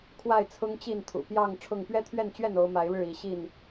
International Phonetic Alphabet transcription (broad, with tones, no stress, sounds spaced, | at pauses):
kʰ w a˥˨ ɪ̯ t͡sʰ ʊ˦ ŋ t͡ɕ i˥˨ n t̪ʰ ṵ˨˩ p j ɑ˥˨ ŋ ʈ͡ʂʰ ʊ˥˨ ŋ p ɥ ɛ˦ t̪ʰ ɥ ɛ˥˨ n t͡ɕ ɥ ɛ˥˨ n o˨˦ ʊ̯ m a˨˦ ɪ̯ ɻ ɻ̩˥˨ i˨˦ ɕ i˥˨ n